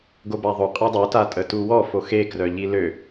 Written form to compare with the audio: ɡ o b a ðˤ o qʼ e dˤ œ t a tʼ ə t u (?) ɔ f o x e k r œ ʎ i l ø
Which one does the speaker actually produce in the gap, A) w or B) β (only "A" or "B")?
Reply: A